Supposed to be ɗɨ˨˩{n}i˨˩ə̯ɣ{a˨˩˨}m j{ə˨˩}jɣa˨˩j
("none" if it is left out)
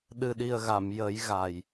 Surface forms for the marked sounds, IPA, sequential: ɗ, a˨˩˨, ə˨˩˦

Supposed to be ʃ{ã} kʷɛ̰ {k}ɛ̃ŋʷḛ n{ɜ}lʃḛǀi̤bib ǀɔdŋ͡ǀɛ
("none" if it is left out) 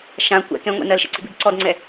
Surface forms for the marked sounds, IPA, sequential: ã, k, ɜ

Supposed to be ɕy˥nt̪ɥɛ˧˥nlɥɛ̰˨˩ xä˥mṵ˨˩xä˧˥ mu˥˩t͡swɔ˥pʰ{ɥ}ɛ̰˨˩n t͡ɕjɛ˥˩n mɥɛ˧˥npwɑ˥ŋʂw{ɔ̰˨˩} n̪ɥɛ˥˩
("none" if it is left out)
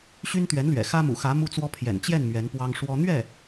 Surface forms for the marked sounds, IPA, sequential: j, ɔ˥

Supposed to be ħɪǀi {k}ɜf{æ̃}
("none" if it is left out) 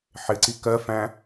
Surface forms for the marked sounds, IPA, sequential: k, æ̃

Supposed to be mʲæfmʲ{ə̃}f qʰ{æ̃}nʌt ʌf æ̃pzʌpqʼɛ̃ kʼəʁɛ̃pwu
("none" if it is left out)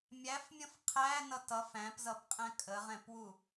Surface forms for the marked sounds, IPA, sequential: ə̃, æ

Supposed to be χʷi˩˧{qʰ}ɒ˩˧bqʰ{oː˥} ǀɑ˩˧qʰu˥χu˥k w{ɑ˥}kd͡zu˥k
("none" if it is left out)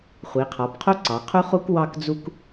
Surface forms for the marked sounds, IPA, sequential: qʰ, o˥, ɑ˥

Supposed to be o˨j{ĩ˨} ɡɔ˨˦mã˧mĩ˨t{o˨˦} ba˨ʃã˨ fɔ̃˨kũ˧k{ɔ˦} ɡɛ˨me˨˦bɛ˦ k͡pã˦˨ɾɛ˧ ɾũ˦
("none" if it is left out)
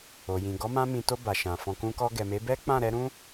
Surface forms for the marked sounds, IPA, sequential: ĩ˨, o˧, ɔ˧

